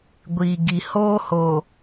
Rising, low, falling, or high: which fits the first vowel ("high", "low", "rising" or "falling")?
low